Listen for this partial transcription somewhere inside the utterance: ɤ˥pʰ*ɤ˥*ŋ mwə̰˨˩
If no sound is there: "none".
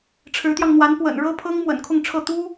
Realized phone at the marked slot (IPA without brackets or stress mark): ɤ˥